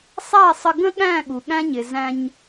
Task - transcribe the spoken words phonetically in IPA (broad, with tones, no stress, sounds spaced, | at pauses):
sˤ æ˦˨ sˤ ə˧ ɡ ə̃˦ ɠ æ̃˦˨ ɠ u˨ ɠ æ̃˦ ɲ ɪ˨ z æ̃˧ ɲ